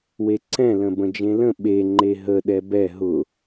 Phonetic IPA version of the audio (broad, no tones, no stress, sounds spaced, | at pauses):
w e ǀ ɛ̃ l ə̃ b ə̃ d͡ʒ ẽ l ə̃ ɓ e ŋ͡ǃ e ɦ ə ɗ ɛ b ɛ ɦ ʊ